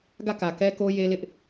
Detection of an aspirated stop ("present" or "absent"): absent